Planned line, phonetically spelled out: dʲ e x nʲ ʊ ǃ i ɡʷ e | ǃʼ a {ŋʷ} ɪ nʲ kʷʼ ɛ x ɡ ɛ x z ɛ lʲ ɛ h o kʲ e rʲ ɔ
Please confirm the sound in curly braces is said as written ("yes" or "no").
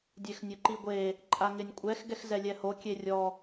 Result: no